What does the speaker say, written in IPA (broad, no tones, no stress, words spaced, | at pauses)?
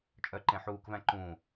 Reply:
t͡ʃʼœ ǃẽħuːkvæ̃ ǃũ